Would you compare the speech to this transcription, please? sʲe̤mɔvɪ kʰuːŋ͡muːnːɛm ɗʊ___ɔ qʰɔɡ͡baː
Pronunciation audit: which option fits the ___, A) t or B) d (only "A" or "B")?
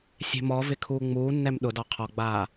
B